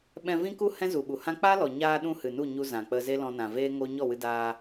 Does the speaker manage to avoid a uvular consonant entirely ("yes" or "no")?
yes